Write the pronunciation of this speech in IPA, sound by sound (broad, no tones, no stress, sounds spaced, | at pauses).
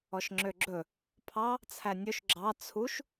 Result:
ɔ ʃ ŋ͡ǁ ø ɡ͡ǁ ɵ | pʰ ɑ | t͡sʰ æ nʲ ɵ ʃ ɡ͡ǁ ɑ t͡sʰ u ʃ